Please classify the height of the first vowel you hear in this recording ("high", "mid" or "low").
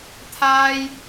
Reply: low